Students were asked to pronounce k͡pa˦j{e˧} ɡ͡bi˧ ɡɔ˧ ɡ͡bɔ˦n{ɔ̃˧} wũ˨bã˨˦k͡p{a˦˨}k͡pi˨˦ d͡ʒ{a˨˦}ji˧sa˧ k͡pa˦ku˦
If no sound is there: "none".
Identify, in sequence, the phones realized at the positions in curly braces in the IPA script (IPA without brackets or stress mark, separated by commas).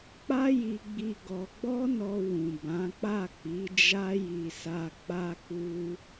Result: i˧, ɔ˧, a˦˨, a˦